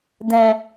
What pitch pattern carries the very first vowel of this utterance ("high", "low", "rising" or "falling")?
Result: low